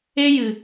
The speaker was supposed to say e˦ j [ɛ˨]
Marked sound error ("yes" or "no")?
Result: yes